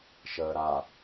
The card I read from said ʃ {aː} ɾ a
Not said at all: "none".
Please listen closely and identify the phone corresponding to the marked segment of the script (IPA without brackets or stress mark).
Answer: əː